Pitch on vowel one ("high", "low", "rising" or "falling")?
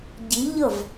rising